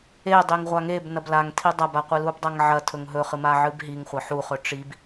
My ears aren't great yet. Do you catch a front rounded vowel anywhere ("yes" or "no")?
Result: no